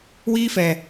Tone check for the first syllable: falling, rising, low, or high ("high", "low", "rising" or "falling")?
high